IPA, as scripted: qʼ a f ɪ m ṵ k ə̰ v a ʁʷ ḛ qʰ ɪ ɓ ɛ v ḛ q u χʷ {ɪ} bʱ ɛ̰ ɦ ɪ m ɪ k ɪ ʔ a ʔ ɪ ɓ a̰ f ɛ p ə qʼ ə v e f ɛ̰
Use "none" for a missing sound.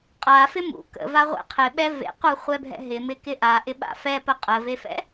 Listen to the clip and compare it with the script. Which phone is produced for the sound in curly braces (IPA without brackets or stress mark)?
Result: ɛ